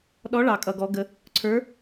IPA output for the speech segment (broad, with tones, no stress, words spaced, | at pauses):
ɗɔ˧˥ɭɑ˨kʼʌ˨ ɡɔ˧˥ɡə˧˥ | ǀʰə˞˧˥